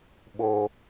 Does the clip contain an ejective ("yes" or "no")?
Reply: no